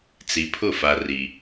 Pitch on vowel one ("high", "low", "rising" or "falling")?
low